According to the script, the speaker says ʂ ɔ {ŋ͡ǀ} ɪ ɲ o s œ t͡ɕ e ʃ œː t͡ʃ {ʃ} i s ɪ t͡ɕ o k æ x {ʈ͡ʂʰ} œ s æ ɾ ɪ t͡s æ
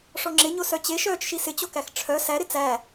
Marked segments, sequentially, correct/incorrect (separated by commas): incorrect, correct, correct